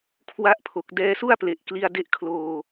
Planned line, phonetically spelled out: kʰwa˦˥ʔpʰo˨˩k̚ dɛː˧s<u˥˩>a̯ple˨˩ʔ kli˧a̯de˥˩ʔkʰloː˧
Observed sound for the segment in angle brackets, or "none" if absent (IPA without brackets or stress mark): u˥˩